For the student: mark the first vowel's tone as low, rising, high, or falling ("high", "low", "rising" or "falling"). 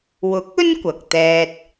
rising